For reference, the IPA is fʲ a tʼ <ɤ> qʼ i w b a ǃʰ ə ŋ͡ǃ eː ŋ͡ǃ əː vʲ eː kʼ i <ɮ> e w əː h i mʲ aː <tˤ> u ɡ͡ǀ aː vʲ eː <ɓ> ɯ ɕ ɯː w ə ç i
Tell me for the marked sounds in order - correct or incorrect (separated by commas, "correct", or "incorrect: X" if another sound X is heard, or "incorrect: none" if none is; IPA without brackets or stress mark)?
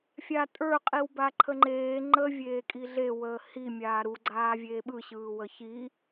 incorrect: ə˞, correct, incorrect: ɾ, correct